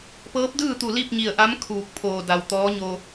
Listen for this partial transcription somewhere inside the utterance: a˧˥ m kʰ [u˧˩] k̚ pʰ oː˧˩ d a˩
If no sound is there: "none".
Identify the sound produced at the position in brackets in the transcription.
uː˧˩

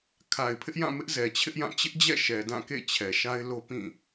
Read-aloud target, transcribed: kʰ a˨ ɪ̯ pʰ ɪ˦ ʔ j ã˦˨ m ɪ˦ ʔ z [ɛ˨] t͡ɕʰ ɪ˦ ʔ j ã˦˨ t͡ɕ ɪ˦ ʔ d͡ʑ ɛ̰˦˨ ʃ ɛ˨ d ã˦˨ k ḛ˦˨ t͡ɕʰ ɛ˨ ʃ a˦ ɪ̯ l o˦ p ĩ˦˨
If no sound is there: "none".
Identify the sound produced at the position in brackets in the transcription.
ɛ˨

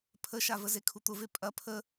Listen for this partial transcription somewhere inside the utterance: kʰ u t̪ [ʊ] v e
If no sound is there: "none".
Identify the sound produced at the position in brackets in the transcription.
ʊ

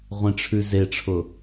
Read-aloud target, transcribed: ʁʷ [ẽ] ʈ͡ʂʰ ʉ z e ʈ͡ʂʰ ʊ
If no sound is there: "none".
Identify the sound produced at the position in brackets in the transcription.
ẽ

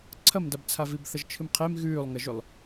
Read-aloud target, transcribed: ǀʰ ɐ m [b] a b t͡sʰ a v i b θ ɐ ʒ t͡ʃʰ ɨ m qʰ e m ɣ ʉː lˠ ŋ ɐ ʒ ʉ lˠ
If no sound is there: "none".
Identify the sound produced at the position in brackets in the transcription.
d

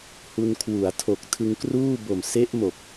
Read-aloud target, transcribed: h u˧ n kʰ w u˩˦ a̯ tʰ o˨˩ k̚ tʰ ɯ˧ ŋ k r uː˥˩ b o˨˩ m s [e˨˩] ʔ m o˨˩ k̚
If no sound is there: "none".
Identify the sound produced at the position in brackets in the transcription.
e˦˥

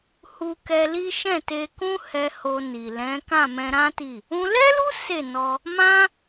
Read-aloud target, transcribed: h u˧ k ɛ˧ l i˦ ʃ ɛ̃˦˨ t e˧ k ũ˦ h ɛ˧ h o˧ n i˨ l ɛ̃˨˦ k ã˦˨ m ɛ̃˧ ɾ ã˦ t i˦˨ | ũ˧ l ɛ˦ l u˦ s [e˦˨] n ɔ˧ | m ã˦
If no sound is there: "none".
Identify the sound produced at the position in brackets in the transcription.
e˦˨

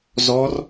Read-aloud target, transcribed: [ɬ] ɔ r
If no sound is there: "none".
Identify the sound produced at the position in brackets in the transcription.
z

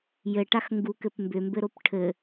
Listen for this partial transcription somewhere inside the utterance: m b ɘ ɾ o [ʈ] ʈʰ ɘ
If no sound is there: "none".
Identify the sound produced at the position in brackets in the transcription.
p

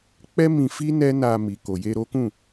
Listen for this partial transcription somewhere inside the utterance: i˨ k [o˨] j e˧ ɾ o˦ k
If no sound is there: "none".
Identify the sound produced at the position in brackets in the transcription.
o˨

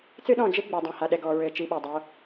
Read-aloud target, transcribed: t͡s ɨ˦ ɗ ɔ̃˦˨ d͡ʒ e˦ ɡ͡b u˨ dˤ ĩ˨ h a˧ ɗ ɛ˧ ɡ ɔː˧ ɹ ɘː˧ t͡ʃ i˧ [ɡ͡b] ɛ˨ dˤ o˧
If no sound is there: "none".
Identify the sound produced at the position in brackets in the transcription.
ɓ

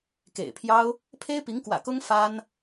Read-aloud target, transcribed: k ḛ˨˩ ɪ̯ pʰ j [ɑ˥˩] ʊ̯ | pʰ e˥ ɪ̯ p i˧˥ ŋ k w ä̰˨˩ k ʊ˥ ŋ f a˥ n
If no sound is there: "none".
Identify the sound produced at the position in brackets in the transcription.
ɑ˥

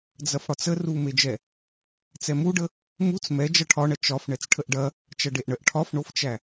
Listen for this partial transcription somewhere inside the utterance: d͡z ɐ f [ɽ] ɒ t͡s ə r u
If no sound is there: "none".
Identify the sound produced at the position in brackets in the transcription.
ɽ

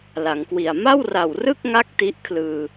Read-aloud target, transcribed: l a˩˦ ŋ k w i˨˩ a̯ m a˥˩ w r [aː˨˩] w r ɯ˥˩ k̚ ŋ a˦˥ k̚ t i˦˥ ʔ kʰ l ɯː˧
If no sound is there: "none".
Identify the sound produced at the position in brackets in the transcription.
a˨˩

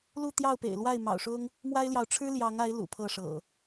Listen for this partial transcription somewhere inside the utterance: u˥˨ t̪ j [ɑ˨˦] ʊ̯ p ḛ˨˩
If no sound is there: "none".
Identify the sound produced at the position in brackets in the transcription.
ɑ˥˨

